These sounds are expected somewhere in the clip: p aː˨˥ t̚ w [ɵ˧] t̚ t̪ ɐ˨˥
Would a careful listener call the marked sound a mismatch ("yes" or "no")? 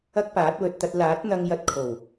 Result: yes